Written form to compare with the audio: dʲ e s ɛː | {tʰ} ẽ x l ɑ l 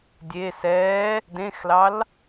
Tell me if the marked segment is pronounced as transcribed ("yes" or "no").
no